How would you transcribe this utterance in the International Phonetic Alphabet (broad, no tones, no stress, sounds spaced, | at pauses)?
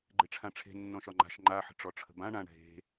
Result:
ɡ͡ǃ e ʈ͡ʂʰ ã ʈ͡ʂʰ e̤ nː ɔ̃ ʃ ɒ ŋ͡ǃ a̤ ʃ ŋ͡ǃ a ħ ə̤ ʈ͡ʂ ɔ ʈ͡ʂʰ ə̤ b ã ɳ ã ɳ ɦ e̤